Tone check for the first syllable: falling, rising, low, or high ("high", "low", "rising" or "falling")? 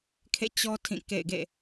falling